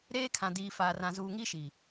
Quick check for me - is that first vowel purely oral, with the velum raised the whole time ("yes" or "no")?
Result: yes